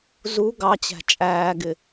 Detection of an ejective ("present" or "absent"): present